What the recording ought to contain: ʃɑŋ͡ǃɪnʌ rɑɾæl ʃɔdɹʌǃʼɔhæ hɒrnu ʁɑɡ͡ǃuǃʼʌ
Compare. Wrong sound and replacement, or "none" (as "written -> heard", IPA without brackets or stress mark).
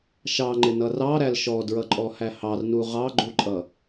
ɒ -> ɑ